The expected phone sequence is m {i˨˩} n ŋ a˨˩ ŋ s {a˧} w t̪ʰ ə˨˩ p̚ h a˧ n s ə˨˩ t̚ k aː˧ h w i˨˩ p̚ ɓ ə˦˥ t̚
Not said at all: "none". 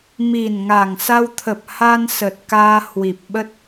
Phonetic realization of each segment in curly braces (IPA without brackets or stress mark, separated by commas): i˨˩, a˧